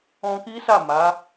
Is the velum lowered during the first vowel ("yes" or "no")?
yes